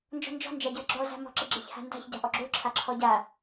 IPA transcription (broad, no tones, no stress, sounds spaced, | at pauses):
n d͡ʒ ɔ̤ n d͡ʒ ɔ̤ n d͡ʒ a ɟ ə˞ ɡ͡ǁ ɔ z a̤ m ɔ̤ ǁ ɘ ɡ͡ǁ e ç h a̤ n d a̤ ç ɟ a̤ ʔ ɔ ɡ͡ǁ o ǁʰ a ǁʰ ɔ ɟ a